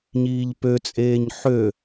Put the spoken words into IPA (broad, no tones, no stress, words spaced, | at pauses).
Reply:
ɲiːʎpøt͡sʼeːɲ ħø